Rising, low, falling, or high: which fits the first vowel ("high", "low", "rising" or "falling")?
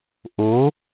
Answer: rising